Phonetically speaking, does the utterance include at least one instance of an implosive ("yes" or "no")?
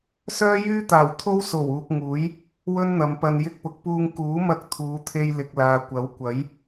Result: no